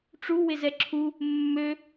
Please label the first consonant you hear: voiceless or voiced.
voiceless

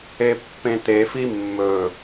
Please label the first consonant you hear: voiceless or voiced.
voiceless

